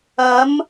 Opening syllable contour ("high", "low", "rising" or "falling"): rising